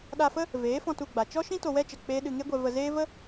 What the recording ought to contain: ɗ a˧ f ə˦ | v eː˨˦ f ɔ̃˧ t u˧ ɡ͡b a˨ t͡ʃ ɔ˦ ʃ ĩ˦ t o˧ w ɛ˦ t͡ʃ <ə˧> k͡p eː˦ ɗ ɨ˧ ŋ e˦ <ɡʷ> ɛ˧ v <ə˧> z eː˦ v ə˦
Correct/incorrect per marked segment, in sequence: incorrect, correct, correct

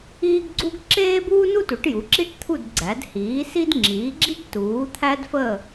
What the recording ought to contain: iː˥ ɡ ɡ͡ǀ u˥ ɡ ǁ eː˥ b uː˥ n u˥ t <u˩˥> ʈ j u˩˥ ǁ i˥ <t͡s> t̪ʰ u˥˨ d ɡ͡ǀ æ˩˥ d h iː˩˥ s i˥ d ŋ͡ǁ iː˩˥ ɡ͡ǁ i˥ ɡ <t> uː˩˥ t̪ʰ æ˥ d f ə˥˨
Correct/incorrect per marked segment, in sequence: correct, incorrect, correct

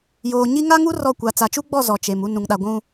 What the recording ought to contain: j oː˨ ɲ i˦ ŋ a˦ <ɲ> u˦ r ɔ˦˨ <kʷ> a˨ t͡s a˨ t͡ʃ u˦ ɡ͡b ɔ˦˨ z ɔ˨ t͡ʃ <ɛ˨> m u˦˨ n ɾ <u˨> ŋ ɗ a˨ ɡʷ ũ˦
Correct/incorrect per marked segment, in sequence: incorrect, correct, incorrect, incorrect

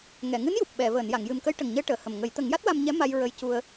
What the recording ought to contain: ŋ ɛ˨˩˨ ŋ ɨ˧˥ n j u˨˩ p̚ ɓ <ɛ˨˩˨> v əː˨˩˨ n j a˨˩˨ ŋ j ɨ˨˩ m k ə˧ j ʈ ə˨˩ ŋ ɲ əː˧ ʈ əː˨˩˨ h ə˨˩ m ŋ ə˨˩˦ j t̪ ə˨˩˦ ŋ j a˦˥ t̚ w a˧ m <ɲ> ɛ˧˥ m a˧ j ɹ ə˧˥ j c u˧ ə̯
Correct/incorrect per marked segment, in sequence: correct, correct

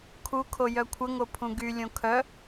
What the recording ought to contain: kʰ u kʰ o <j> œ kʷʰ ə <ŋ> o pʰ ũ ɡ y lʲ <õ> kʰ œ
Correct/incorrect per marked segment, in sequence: correct, correct, correct

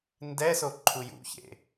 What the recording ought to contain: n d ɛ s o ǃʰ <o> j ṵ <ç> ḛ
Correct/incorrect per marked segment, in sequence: incorrect, correct

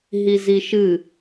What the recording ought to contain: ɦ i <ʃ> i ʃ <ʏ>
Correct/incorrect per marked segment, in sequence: incorrect, incorrect

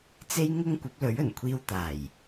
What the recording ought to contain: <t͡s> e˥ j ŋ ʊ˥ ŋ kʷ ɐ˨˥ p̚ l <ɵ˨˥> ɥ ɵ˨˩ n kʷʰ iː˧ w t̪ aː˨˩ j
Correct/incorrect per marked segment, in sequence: correct, correct

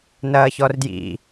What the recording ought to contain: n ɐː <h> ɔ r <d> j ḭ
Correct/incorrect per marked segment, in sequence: incorrect, correct

